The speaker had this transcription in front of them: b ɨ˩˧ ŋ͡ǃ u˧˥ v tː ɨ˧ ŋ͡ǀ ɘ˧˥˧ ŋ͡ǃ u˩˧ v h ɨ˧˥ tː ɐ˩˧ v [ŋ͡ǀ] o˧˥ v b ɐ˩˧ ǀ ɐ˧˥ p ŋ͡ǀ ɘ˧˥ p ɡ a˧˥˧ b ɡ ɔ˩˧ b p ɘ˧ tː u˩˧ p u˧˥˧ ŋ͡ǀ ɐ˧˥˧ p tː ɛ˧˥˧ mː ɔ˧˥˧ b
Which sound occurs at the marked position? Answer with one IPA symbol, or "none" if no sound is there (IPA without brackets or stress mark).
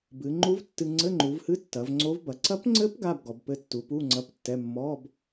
ŋ͡ǀ